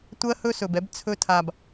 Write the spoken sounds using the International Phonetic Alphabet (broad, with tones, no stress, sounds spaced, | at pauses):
tʷ ɜ˦ h ɵ˦ s ɵ˨ b ɛ˧ b t͡sʰ ɵ˧ tʰ a˨ b